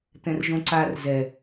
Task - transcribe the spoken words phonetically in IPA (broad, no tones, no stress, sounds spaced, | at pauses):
t̪ ɛ̃ r ʒ õ ǀ a r z ɛ